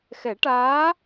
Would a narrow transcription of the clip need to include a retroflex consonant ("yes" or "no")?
yes